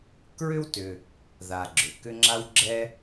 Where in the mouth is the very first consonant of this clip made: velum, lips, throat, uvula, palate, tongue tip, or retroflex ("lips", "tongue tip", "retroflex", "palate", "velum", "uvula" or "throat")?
velum